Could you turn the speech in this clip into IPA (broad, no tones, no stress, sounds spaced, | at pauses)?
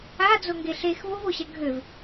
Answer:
a d͡z o ŋ ɡ e ɬ e x v o v o ɕ ɐ ɡʱ ø v